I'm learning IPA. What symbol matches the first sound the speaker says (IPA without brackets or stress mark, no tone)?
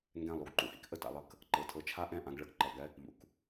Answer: ŋ